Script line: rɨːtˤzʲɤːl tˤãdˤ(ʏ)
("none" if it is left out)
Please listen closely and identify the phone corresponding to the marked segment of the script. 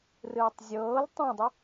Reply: ʏ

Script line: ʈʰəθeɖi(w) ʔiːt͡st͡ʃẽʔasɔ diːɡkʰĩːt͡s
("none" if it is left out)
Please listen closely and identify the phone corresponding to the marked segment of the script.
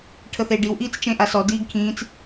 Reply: w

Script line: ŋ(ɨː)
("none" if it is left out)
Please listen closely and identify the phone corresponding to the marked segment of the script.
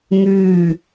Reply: ʉː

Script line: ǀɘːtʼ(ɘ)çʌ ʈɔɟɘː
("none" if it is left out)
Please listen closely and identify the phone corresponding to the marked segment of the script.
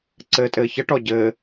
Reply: ɘː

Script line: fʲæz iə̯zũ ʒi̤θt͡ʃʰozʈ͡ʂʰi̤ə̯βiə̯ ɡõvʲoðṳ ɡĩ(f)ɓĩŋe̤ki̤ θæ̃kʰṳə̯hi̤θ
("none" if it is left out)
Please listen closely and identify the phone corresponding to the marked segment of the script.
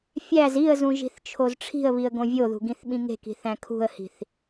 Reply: θ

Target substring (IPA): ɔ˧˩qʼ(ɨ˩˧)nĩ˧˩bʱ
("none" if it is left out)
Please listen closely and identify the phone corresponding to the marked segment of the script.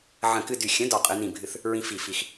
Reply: ɨ˩˧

